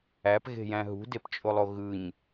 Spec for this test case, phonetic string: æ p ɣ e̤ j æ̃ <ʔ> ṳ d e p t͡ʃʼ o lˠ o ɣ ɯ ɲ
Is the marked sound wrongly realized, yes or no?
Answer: yes